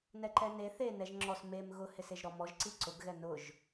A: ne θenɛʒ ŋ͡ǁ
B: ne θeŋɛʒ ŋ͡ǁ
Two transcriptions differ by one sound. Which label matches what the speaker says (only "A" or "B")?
A